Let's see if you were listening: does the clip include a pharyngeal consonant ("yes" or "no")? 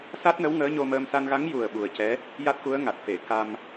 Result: no